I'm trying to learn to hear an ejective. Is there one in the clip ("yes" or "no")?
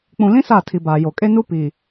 yes